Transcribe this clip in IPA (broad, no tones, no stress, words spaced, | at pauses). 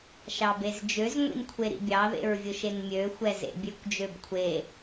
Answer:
ʃɑbezd͡ʒøz ŋʷḭnkʷʰeɾḭbʲɑ ðḛɹvʲʊʃenmʲø xʷɛzḛbʲøkʷ d͡ʒøbkʷʰe